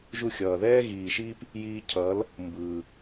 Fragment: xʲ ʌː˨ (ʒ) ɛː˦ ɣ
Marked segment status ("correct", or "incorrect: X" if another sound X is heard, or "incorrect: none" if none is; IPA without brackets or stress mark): incorrect: ð